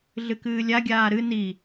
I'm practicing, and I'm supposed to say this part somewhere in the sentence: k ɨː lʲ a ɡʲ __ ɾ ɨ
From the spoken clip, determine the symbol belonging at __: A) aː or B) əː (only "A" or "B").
A